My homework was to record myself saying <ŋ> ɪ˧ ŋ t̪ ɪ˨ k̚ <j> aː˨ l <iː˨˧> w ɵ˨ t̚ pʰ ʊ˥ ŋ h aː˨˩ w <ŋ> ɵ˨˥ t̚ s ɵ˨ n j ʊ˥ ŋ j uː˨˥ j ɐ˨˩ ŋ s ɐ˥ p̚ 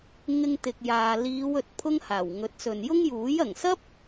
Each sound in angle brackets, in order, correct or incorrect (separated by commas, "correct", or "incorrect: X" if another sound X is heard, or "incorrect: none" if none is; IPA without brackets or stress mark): correct, correct, correct, correct